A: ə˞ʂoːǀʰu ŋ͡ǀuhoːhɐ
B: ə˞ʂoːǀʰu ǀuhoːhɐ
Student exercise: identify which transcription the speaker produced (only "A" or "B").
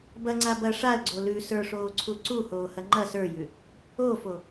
B